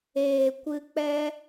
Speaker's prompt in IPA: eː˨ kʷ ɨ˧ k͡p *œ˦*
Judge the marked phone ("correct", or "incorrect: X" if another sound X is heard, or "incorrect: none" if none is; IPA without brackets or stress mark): incorrect: ɛ˦